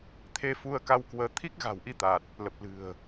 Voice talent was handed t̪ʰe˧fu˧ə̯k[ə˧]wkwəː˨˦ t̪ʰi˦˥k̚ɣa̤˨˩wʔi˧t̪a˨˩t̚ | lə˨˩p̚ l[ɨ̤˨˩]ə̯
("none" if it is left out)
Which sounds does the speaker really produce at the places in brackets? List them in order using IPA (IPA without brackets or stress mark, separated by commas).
a˧, ɨ̤˨˩